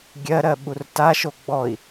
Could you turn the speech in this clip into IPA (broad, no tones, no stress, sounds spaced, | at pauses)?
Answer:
ɡʲ ɜ ɾ ɜ ɓ u r t a ʃ o ɡ͡b ɔ i̯